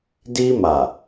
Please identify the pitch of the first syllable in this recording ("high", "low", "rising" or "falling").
high